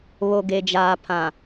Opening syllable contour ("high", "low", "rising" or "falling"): low